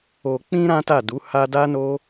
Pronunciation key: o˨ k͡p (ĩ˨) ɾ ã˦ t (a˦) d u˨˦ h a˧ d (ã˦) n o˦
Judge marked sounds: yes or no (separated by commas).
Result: no, no, no